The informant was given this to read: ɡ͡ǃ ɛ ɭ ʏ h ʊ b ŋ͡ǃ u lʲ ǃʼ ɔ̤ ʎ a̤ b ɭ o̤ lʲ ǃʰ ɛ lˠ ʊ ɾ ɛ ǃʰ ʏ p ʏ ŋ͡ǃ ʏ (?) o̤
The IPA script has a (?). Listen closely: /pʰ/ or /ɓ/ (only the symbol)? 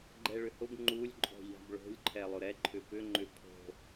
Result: pʰ